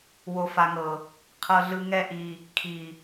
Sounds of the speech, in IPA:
w o˨ f a˨ ŋ ɤ˨ | qʰ ɤ˨ ɮ ɯ˨ ŋ ɛ˧ ʔ i˨ | kʰ i˨

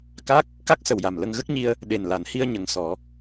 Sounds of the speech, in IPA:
k a˦˥ k̚ | k a˦˥ k̚ s ə˨˩ w j a˨˩ m l ə˧ ŋ ɣ ə˦˥ k̚ ɲ i˧ ə̯ | ɗ e˨˩ n l a˨˩˦ n h i˧ ə̯ ɲ ə˨˩ ŋ s ɔ˨˩˦

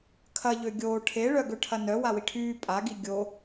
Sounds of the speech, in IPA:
kʰ ɐ ʎ ø ɡʲ oː ʈʰ e ɭ œ ɡ ø ʈʰ ɐ n œ w a w i ʈʰ yː pʼ a ɡ i ɡʲ o

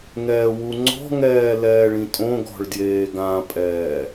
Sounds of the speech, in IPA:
ŋ ɛː w u ŋ͡ǀ ɔ̤ ŋ ɛː l ɛː ɭ ĩ tʼ õ ɡ ɔ̤ ɭ d j eː ɡ ã pʼ ɛː

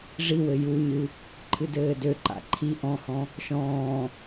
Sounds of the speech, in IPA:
ʐ i w ɘ j u ɲ ɨ | ǃʰ ɨ d ɘː d ø ǃ a̰ ǃʰ i ʔ ɔ̃ h ɔ̃ | ʃ ɔ̃ː

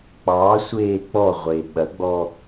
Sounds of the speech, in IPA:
k͡p ɑ sʷ eː k͡p ɔ ʁʷ e ɓ ɐ ɡ͡b ɔ

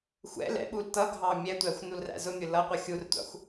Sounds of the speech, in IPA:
xʷ ɛ̰ l ɛ̰ ɓ u l t ʌ ɡʱ ɑ mʲ ɛ tʷ æ xʷ n u l r æ̰ z ʊ mʲ ʊ l ʌ qʷ ʌ xʲ u r tʷ ɑ̰ xʷ

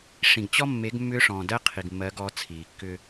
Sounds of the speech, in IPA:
ʂ ĩ˨ ɡ t͡ɕ ɔ˦ mː e˨˦ ɡ mː ʏː˦ ʂ ɔ̃ː˨ d ɜ˦ qʰ i˨ ɡ mː ɜ˨˦ ɡ ɔ˨˦ t͡sʰ iː˨ kː ʏ˦

